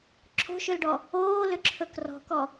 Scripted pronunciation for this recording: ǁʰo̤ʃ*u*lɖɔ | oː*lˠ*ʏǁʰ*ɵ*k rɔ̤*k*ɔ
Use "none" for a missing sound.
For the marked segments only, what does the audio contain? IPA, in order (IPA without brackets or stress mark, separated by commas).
ʏ, l, ɵ, k